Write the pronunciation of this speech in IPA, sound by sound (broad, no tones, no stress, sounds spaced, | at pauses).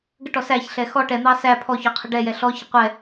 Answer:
ɡ ə ʈ ɔ s æ ç ɬ ɛ x ɔ ʈ ɛ n̪ ɑ s æ pʰ ɔ ç ɔ qʰ ə ɖ ɛ j ɛ ɬ ɔ ç ə qʷ ɛ